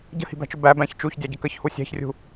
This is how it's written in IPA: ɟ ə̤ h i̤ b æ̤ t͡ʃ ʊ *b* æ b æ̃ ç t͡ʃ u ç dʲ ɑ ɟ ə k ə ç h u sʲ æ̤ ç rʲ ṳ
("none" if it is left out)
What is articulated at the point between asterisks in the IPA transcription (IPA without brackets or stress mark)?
b